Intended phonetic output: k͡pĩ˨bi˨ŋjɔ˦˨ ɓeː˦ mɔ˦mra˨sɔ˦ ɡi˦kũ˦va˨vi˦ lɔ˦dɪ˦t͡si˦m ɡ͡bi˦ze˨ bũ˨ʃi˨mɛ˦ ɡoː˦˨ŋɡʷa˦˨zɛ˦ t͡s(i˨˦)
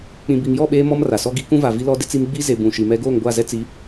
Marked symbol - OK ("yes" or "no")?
yes